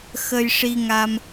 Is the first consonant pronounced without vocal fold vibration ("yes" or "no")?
yes